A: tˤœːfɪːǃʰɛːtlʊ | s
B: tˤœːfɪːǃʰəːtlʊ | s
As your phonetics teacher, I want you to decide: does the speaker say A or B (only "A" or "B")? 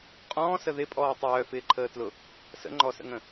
B